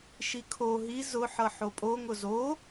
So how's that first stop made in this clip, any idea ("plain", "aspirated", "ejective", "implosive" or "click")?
aspirated